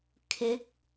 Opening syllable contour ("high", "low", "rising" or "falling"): rising